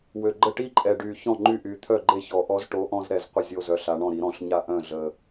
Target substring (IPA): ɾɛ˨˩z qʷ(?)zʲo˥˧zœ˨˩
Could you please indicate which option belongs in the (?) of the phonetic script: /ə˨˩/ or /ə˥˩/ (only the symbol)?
ə˥˩